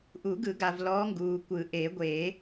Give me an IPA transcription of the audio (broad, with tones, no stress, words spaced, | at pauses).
ʔu˨˩˦ɡɯ˨˩˦ɡa˨v lɔ˧˥ŋɡuː˨ kʷɯ˨˩˦ʔe˨˩˦ɡʷe˨˩˦